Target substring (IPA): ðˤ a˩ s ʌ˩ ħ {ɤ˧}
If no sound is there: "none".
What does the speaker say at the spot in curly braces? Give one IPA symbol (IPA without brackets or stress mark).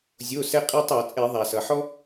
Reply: ɔ˧